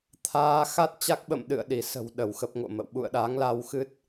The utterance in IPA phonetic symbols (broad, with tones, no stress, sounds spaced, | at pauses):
t̪ʰ aː˧ x a˦˥ t̚ t͡ɕ a˦˥ k̚ ɓ ə̰˧˨ m ɗ ɨ̰˧˨ ə̯ ɗ i˧˩ s ə̤˨˩ w ɗ ə˧˩ w x ə˦˥ p̚ ŋ o̰˧˨ m ə̰˧˨ w ɓ ṵ˧˨ ə̯ ɗ a˨˦ ŋ l a˧ w x ɨ˦˥ t̚